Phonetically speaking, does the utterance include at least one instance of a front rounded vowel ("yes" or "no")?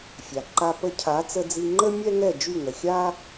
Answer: yes